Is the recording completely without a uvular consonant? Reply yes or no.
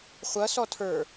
no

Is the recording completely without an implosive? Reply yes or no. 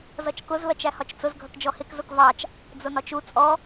yes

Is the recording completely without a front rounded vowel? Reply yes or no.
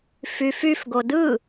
no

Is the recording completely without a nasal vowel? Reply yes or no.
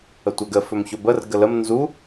yes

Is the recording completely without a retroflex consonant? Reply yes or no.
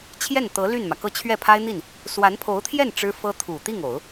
no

